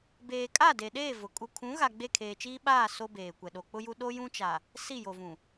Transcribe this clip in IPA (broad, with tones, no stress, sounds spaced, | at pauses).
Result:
b eː˨ kʼ a˦˨ d e˨ ɗ eː˦˨ v ʊ˨ kʼ u˨ kʰ ũ˨˦ ɣ a˨ ɡ͡b e˦˨ kʰ eː˨ t͡ʃ iː˦ ɓ aː˦˨ s o˦ b eː˨ kʷ ɛ˨ ɗ o˨ k͡p ʊ˦ j u˦ ɗ o˦ j ũ˦ t͡ʃ a˨ | s i˦˨ j o˨ v ũ˨